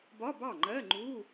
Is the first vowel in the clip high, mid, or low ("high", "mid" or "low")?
low